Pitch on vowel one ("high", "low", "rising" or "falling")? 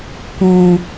low